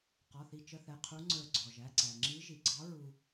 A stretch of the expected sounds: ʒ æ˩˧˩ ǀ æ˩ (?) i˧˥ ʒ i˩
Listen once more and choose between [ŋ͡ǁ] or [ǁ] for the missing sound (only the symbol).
ŋ͡ǁ